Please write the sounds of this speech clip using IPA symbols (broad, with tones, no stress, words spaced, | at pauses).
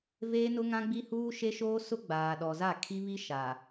veː˦nʊ˦ŋã˦ɡ͡bi˦ huː˦ʃe˦ʃoː˦ sʊ˦ ɡ͡baː˨ɗɔ˨ za˦˨kʰi˦βi˦ʃa˨